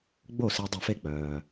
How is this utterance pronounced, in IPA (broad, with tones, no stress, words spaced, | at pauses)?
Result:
ɡ͡bo˥˩si˧dˤe˧˩˧f e˥˩k͡pœː˩